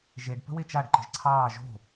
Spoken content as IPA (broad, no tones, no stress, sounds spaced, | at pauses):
ʒ e ɖ p ə̤ w e t͡ʃ a ɖ ǃ ə̤ ʒ ǀʰ ɑː ʒ o̤